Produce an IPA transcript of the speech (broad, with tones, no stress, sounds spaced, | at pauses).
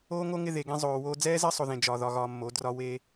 oː˦ ŋ o˦ ŋ ɪ˧ ð e˨ ɡ ẽ˧ zˤ oː˨ w oː˧ d͡z ɛː˦ z ɘ˦ sˤ o˨ ð ẽ˨ d͡ʒ ɒ˨ ð ɒ˧ ɣ ɒː˧ mː o˨˦ d r ɒ˧ w e˧